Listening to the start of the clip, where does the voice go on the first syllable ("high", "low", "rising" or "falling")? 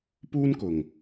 high